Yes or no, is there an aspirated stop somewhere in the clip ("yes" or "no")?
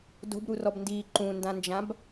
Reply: no